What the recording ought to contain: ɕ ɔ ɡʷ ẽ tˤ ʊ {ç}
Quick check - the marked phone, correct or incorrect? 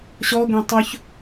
correct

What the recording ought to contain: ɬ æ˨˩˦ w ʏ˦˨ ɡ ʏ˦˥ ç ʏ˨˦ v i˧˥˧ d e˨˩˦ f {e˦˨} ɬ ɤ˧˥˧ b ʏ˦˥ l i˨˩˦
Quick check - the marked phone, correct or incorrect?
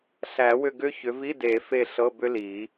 correct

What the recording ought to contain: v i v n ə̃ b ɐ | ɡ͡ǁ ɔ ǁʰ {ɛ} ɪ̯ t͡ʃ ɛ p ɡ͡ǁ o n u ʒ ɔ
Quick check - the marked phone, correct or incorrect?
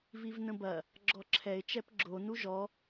correct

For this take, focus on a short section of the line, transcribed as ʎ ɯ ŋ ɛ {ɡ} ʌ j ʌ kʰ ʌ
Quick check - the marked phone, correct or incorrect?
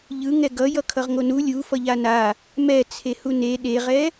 correct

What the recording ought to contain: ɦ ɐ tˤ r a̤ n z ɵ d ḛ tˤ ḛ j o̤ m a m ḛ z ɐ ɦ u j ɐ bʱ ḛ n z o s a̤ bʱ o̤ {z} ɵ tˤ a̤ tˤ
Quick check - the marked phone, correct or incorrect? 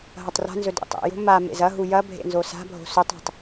incorrect: s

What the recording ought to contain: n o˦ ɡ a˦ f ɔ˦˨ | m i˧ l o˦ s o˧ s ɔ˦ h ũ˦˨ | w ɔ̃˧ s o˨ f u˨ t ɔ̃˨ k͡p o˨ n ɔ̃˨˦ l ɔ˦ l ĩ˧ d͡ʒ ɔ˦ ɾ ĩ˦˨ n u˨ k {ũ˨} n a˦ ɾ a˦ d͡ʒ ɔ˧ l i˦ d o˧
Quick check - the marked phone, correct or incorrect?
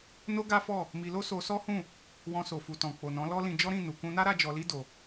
incorrect: ũ˧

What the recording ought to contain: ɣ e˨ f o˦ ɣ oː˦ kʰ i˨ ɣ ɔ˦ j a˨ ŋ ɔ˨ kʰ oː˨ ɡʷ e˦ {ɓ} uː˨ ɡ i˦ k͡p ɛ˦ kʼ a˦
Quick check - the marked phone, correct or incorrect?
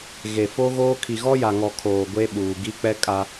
correct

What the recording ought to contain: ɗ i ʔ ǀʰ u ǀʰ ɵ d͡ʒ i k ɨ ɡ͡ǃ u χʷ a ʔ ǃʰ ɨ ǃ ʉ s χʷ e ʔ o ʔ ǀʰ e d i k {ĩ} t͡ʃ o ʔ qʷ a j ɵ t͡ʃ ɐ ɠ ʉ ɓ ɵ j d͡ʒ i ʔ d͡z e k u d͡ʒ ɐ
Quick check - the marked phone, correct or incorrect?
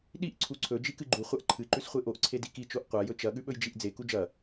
incorrect: i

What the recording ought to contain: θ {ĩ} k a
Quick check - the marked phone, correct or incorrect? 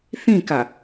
correct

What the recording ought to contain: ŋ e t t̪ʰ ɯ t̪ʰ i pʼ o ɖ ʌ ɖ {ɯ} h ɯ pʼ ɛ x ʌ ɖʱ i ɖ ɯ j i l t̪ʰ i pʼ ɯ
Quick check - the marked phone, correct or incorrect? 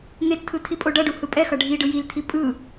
incorrect: u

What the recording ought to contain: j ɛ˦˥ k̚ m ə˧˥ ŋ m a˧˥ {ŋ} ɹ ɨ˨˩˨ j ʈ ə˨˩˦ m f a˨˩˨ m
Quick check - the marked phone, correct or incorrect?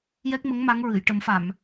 correct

